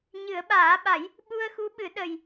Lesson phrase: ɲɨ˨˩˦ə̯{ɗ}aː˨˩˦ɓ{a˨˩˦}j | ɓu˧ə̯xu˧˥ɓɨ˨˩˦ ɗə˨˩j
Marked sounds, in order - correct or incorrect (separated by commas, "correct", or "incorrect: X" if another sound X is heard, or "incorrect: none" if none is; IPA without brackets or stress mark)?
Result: incorrect: ɓ, correct